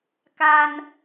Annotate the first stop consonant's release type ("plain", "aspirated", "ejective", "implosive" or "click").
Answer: plain